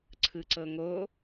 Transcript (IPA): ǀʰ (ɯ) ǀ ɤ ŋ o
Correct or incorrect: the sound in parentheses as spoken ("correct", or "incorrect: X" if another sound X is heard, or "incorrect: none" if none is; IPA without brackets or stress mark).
correct